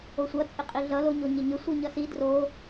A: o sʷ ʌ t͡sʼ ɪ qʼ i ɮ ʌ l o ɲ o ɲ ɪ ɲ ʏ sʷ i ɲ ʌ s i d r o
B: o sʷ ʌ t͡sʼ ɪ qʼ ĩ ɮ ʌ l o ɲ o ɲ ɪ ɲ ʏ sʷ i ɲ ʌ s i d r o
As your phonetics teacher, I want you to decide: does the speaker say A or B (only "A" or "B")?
A